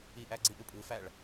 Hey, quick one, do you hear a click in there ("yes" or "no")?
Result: yes